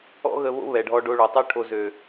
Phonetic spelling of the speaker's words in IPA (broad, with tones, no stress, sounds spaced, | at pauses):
ɔ̰˥ ɣ ə˧ β o̰˥ β ɛ˩ ɖʱ ɔ˧ ɖ o˧ ɭ o˩ tˤ y˥ ʈʰ o˧ z ø˩